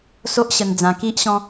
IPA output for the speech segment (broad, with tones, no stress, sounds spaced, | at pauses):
s o˦ ʔ ɕ ə˧ n d͡z ã˧ k i˦ ʔ ɕ ɔ̃˦